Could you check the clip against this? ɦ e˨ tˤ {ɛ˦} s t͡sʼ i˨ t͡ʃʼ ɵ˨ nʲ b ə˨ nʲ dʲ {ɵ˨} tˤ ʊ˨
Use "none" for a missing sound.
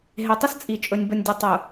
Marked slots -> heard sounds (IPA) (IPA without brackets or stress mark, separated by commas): ə˦, ʊ˨